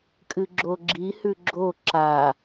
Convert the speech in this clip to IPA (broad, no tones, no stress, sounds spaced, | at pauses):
kʼ ɨ ɡ͡ǁ o ɡ͡ǁ i h ʉ ɡ͡ǁ o ǁ a